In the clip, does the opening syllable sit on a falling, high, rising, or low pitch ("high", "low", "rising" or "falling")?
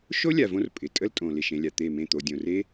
high